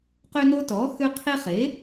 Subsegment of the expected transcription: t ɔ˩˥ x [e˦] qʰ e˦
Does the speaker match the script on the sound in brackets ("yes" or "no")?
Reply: no